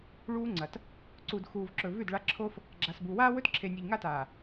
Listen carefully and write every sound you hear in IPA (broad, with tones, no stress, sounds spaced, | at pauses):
ɭ uː˦ ŋ͡ǀ ɐ˨ t | ǀ u˨ d x uː˨ v ǁ ɵ˨ v ʉ˦˨ d ɭ a˦ ǁʰ o˦ f | ɡ͡ǁ a˨ s b u˨ w aː˦ w ɵ˦ t ǁʰ e˨ nʲ u˨ ʎ ŋ a˦ t aː˨